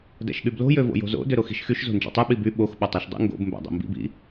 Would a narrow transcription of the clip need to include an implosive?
yes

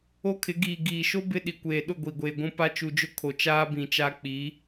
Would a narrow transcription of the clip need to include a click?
no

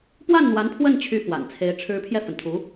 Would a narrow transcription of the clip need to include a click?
no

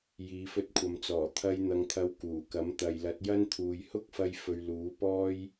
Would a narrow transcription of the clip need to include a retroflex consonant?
no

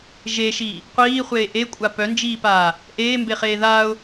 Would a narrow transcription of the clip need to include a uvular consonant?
yes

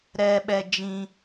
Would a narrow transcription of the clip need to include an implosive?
yes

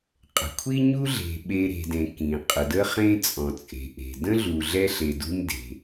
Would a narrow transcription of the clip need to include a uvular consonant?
yes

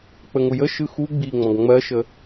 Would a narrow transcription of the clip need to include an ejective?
no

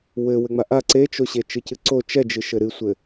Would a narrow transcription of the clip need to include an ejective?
no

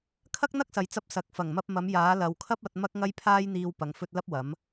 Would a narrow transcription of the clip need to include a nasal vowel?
no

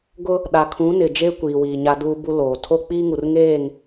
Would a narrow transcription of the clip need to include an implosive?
yes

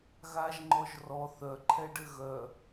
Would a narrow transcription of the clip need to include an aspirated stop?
yes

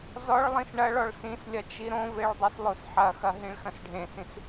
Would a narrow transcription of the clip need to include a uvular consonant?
no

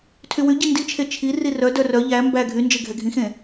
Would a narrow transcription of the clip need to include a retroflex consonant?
no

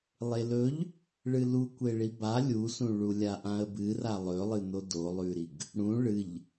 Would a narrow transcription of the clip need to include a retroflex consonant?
yes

